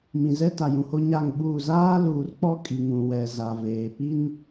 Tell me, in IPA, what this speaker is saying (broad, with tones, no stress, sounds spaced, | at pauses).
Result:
m ĩ˨ z ɛ˦ t a˨ j ũ˨ h o˦ ɲ a˦˨ ŋ ɓ uː˦˨ z aː˦ l uː˨ r k͡p ɔ˦ kʼ i˨ ŋ ũ˨ w ɛ˨ z a˨ v eː˨ p i˦ n